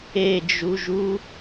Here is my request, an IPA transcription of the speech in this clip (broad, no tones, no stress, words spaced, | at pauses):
ed͡ʒuʒu